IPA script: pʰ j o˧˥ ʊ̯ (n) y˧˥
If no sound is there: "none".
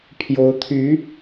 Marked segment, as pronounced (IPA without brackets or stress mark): t̪ʰ